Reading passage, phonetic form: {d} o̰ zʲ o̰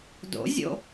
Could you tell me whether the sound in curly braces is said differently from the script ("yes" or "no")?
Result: no